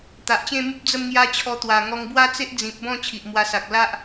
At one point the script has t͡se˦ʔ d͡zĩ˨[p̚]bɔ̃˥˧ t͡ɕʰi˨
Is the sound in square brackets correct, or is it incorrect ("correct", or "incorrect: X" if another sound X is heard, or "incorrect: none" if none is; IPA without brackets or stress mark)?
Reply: correct